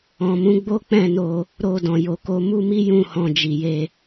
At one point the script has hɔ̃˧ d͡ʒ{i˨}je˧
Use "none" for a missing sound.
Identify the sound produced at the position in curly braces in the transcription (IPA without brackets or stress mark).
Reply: i˨